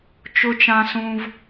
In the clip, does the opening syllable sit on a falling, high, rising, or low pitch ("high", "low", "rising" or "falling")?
high